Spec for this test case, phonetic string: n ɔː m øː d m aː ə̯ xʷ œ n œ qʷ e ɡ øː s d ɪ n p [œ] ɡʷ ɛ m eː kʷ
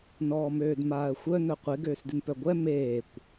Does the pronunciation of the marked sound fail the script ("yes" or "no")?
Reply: no